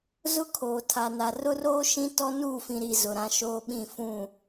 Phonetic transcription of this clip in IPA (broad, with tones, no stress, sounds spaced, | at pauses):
z ʊ˦ kʰ oː˨ tʰ a˨ n a˨ r ʊ˦ r oː˦ ʃ ĩ˦ t ɔ˦ n uː˦˨ f ĩ˨ ɾ i˨ z ʊ˨ ɾ ã˦ ʃ oː˦ ɓ ĩ˦˨ f ũ˦˨